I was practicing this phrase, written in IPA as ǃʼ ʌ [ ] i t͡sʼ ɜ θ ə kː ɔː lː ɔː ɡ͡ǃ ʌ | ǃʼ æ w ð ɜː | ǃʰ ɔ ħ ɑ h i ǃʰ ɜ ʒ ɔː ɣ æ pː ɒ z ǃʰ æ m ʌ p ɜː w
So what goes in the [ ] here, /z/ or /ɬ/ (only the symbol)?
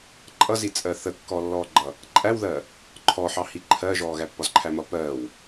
z